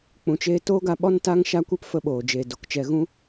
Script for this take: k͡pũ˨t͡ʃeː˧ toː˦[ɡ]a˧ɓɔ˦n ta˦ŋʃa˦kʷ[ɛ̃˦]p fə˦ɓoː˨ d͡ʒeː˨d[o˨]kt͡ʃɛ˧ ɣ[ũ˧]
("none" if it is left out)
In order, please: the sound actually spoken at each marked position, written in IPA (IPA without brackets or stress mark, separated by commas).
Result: ɡ, ɛ˦, o˨, ũ˦